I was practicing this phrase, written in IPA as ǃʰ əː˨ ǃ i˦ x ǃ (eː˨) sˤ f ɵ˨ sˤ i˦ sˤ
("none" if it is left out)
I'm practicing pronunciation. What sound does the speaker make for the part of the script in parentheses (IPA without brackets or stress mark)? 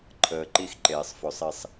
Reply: eː˨